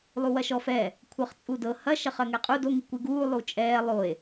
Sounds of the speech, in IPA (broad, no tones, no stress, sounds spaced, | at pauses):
lˠ u w ɐ ʃ ɔ f ɛ | kʷʰ ɤ χ t͡sʼ u d ɤ h ɐ ʃ ɐ χ ɜ ŋ ɛ qʼ u d o ŋ i kʷ i ɡ uː lˠ u t͡ʃʼ ɛː lˠ o e̯